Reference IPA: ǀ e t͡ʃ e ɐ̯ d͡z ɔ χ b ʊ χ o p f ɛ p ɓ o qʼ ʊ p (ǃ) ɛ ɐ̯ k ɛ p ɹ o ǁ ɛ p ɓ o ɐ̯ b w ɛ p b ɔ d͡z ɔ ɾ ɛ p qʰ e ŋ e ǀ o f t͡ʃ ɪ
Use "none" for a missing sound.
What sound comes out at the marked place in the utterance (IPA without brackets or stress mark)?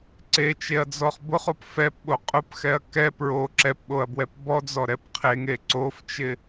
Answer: x